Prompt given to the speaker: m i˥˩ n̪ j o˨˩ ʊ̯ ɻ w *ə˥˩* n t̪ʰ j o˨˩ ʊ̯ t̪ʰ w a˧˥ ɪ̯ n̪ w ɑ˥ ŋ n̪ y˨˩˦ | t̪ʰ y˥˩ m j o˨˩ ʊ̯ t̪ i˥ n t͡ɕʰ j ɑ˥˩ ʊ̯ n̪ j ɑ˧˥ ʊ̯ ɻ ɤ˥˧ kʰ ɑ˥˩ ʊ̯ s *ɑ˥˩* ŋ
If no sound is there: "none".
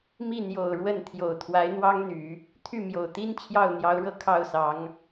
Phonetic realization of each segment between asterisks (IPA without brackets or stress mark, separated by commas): ə˥˩, ɑ˧˥